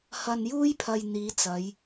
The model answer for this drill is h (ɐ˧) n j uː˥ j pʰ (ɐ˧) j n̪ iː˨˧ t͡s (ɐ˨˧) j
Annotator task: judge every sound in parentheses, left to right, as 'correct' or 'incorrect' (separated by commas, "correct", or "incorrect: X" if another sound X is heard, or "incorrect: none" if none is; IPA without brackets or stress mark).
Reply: correct, correct, correct